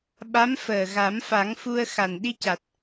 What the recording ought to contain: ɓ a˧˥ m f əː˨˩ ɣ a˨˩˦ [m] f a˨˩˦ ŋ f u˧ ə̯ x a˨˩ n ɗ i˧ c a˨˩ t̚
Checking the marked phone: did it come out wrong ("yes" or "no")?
no